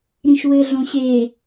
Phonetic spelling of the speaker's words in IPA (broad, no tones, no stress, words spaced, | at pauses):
ɾĩʃwɘɮõ ɕe